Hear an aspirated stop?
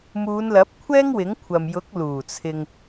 yes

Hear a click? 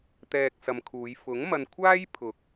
no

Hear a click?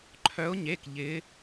yes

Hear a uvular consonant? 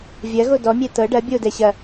no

